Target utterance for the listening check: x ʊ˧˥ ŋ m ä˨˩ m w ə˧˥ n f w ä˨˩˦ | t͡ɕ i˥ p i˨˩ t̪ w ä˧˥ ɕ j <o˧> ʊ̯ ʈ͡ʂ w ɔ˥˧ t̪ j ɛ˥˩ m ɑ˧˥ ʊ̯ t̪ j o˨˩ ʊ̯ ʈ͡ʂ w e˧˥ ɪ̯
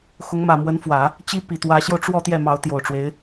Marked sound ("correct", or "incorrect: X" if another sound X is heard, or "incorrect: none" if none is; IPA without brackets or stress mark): correct